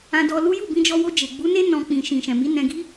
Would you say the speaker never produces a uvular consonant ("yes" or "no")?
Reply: yes